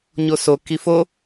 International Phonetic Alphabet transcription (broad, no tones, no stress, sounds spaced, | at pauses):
ɲ o s o k i f o